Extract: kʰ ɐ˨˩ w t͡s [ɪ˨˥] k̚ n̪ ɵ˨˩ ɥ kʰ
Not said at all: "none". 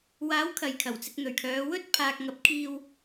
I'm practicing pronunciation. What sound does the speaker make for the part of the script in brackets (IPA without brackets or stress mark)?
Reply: ɪ˧